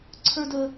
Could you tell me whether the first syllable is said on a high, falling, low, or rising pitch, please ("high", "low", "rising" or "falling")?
high